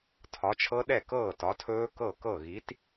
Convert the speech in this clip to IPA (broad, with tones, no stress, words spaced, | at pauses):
tʰɒ˨˥t͡ʃʰɤ˦˥ɗɛ˥˩ kɤː˥˩tɒ˨˥tʰɵː˦˥ kɤ˥˩kɤ˥˩ ɣi˨˥t